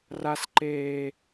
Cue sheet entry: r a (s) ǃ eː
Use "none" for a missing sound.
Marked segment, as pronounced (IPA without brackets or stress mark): s